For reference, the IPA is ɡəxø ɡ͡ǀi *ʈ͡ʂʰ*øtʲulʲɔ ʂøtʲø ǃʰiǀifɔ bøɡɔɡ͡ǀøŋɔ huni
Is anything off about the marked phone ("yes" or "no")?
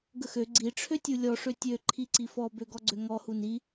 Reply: no